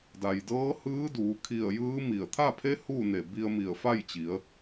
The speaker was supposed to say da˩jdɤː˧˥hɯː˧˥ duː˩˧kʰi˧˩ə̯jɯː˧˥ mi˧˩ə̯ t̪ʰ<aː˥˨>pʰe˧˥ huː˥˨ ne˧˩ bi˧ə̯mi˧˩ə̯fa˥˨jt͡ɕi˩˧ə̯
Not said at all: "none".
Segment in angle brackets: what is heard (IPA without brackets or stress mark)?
a˥˨